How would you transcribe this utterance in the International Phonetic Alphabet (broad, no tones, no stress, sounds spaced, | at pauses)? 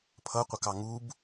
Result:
pʰ ʌ qʷ ɐ k ɑ ŋ u b